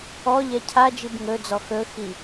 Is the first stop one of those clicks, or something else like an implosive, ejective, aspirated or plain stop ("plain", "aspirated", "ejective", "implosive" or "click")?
aspirated